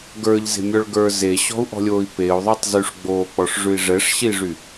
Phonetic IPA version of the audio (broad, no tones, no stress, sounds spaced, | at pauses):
ɡ ə˞ ʎ z e̤ mʲ ɔ ɭ ɡ ə˞ z e ɕ ɔ̤ u̯ ʔ ɔ̤ lʲ oː i̯ p e u̯ ðˤ o tˤ z y ʂ ɡ͡b oː k͡p ɔ ʂ ʐ ʉ i̯ ʐ ɛ ʂ ɕ i ʐ y